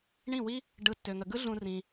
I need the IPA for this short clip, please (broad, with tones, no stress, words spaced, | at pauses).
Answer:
ɳĩ˦˨wi˦ | ɖɯ˦tːø˧ŋə˧ ɡɯ˦ɮũ˧ rĩ˧